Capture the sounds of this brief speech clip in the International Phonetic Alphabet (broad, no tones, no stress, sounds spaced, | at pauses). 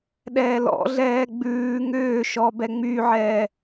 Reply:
ɗ ɛː l ɔ̰ ɮ ɛː ɡ͡b ʉː ŋ ʏː ʃ ɔ b ɛ ŋ͡m y ʕ ɛː